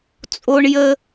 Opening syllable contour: high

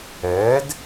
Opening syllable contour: rising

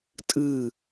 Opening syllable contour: falling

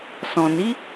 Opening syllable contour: low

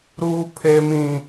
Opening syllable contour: high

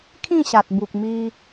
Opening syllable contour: falling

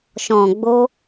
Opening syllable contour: low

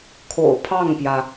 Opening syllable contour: low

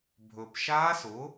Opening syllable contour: low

